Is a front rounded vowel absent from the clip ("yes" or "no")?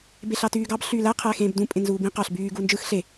no